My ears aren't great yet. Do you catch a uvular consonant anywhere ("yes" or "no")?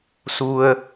no